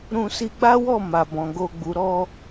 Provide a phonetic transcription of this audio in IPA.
ɾ ũ˧ s i˧ ɡ͡b a˦ w ɔ˦˨ m a˨ b ɔ̃˨ ɡ o˧ ɡ͡b u˨ ɾ ɔ˧

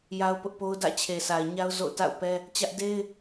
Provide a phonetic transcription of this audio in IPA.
j a˦ ʊ̯ p ʊ˦ ʔ p o˦ ʊ̯ d ä̰˦˨ t͡ɕʰ e˨ sʰ a˨ ɪ̯ ɲ a˦ ʊ̯ z o̰˦˨ ʊ̯ t a̰˦˨ ʊ̯ p ɛ˦ | t͡ɕ ä˦ ʔ d e˦ ɪ̯

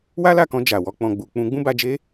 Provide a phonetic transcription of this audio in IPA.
w a˦ l a˦˨ k ɔ̃˧ d͡ʒ a˨ w ɔ˨˦ k͡p ɔ̃˧ ɡ͡b u˧ k͡p ũ˧ ɡ͡b ũ˦ b a˧ d͡ʒ e˦

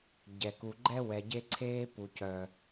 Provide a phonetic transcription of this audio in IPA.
ɟ ɛ˨ k u˨ ɡ͡ǃ ɛ˦ w ɛ˨ ɟ e˦ ǀʰ eː˦ p u˨ c œ˦

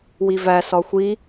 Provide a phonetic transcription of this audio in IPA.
w i v æ s ɒ xʷ i

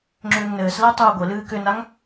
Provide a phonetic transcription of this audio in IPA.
ŋ͡ǁ ʏː ŋ n ɘː s l ɛ tˤ uː ɡʷ ɘ l ɨː k ʏ n a ŋ

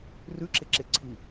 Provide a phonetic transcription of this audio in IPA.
r ʉ ǁ ɪ ǁ ɪ ǀʰ i

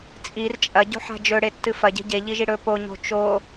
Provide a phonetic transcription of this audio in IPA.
t͡sʼ i r t͡ʃʼ ɐ ɟ o̤ ħ a̤ d͡ʒ ɵ ɽ e tː ɨ f ɐ ɟ e̤ ɟ e ʎ i ʒ i ɽ ɵ p o ɲ o̤ t͡ʃ o

